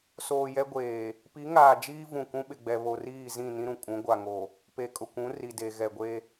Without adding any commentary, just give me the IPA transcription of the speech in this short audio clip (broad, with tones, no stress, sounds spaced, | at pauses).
s oː˨ j ɛ˦ ɡʷ eː˨ | p i˨˦ ŋ aː˨ d͡ʒ iː˦ v ũ˨ k ũ˦ ɓ ɪ˨ ɡ͡b ɛ˨ β o˨ r iː˦˨ z ĩ˦˨ n ĩ˦ ɾ ũ˨ kʼ ũ˨˦ ɡʷ a˨ ŋ o˨ | p e˨ kʼ ʊ˨ kʷ ũ˨˦ r i˨ d e˨ ɣ ɛ˨ ɡʷ e˦